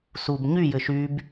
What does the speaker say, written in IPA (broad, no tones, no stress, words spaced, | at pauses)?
sub ɲy jɘʃyb